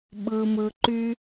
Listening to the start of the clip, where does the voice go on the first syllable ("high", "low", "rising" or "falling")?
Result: low